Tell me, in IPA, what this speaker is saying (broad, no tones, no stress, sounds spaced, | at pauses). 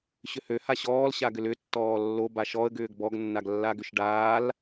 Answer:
ɕ ʏ h ø h a ɕ ɔː l ɕ a ɡ ʏ l ʏ tː ɔː lː o b a ʃ ɔ ə̯ ɡ ʏː ɡ b ɔ ɡ nː a ɡ lː a ɡ ʏ ʃ ɖ aː l